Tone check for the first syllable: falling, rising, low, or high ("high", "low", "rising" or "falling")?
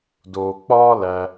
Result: low